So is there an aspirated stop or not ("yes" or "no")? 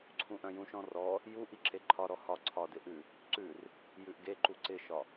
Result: yes